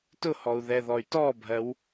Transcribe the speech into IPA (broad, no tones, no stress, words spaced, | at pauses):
tʊhɔu̯ ðɛðɔy̯tɔbʱɜw